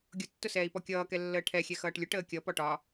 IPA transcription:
ɡʲ ʊ tː ʊ s ɛː i̯ p ɔ kʲ ʌː k ɛ lː əː ʈʰ ɛ xʲ ɛ x ʌː ʈ lʲ ʊ ʈ əː kʲ ʌ p ɔ ʈ ɒ

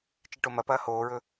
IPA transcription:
t͡ʃ i ʈ o m ɐ p ɐː h oː ɹ ɵ

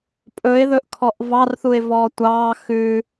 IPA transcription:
pʼ ɵ ɪ̯ ð ɵ ʔ kʰ ɔ ʔ v ɑ r θ u ɪ̯ v ɔː tʷ ɑː x ʉ

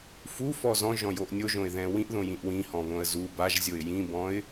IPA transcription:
f u f ɔ z ɔ̃ ʒ ɔ̃ j o ʔ nʲ o ʒ õ ɪ̯ ð ɛ̃ w ĩ ʔ ð õ j ĩ ʔ w ĩ h ɔ̃ β õ ə̯ z u b a ʒ zʲ o ɪ̯ j ĩ b ɔ̃ ɪ̯

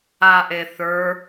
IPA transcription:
a ʔ e θ ə˞

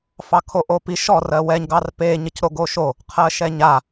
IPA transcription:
f ɑ kʰ o ʔ o p i ʃ ɔ r ɜ w ɛ ɲ ɡ ɑ r p e ɲ ɘ c ɾ o ɡ o ʃ o | qʰ ɜ ʃ ɛ ɲ a

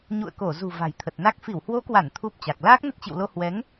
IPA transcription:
ɲ ṵ˧˨ ə̯ k o˧˩ z ṳ˨˩ v a̤˨˩ j t̪ʰ ə˨˩ t̚ n a˦˥ k̚ f i˧˩ w h w o˨˦ k w a˧˩ n t̪ʰ u˦˥ p̚ t͡ɕ a˨˩ k̚ l aː˦˥ k̚ n ə˦˥ t̚ t͡ɕ ḭ˧˨ w l o˧ h w ɛ˨˦ ŋ

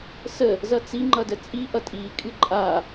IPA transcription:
s ə | z ʌ t͡s i ŋ͡ǃ ʌ d ə t͡sʼ i ʔ ʌ tʼ i kʼ ɨ ǃʼ a

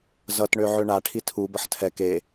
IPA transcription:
z ʌ t ɳ ø ʕ ø ɳ a ʈʰ i tʰ u b ʌ ħ tʰ ɛ k e

